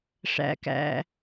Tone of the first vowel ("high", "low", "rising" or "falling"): low